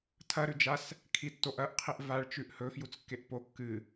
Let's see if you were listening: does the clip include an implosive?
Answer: no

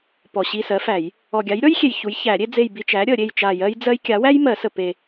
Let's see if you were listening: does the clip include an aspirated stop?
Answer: no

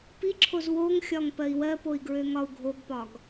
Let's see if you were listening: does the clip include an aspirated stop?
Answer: yes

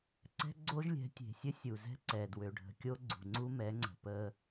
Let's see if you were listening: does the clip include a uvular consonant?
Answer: no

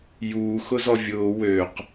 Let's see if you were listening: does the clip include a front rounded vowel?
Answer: yes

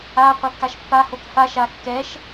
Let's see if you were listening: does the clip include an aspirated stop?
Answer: no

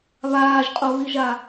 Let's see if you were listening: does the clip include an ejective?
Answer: yes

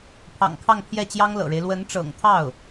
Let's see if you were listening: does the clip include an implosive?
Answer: no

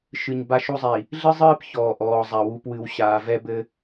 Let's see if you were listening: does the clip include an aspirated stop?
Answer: no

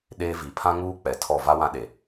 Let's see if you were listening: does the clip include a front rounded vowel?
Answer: no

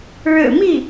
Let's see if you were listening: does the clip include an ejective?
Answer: no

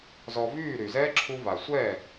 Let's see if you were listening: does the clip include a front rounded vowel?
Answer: yes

